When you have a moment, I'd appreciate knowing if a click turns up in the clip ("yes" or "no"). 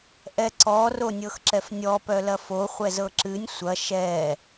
yes